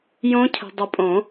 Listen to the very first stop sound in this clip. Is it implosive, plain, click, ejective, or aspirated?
aspirated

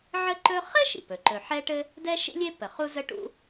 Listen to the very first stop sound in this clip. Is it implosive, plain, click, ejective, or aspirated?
click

